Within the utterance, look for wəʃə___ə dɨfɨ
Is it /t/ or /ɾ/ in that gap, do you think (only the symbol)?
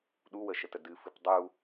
t